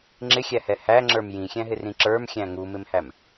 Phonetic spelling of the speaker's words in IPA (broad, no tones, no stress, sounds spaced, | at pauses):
ŋ͡ǁ ɪ xʲ æ h ɛ h æ ŋ͡ǁ ə˞ m j ĩ xʲ æ̃ ɦ ɪ r ĩ ǁ ə˞ m xʲ æ̃ ŋ u m ɪ m h æ m